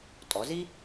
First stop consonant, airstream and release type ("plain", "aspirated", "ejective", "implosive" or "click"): ejective